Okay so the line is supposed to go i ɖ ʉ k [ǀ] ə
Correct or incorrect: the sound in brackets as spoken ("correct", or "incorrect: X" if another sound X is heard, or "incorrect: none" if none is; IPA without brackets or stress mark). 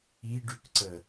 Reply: correct